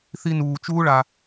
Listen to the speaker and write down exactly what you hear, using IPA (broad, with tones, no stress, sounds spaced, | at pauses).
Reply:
θ i˧ n uː˧ t͡ʃ uː˦ ɭ a˧